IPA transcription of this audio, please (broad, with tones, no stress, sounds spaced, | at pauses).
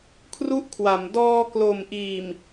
kʰ r u˥˩ ʔ kʰ w a˩˦ m d ɔː˧ k l o˨˩ m ʔ iː˨˩ m